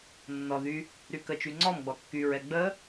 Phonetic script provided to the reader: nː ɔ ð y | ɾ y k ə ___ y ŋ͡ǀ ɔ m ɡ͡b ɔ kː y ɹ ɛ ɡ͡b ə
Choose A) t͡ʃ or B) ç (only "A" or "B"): A